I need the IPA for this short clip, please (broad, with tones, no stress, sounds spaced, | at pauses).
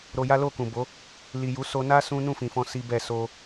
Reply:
ɾ o˧ j a˦ l o˦˨ k ũ˨ b o˨˦ | l i˨ j u˨˦ s o˧ n a˦ s ũ˦ n ũ˦˨ f ĩ˨ f ɔ̃˧ s i˦ b ɛ˦˨ s o˧